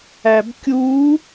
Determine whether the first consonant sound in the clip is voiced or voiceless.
voiced